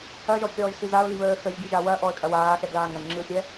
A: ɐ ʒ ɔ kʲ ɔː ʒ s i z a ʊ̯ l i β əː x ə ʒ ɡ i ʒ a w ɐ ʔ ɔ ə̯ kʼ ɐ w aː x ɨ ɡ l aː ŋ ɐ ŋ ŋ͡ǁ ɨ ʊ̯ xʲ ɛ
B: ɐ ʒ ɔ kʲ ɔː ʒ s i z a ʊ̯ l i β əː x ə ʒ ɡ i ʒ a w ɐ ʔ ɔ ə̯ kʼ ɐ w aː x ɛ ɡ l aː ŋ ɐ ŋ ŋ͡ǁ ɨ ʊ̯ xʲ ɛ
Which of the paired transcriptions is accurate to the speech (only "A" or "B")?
B